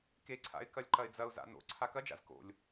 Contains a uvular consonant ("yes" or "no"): no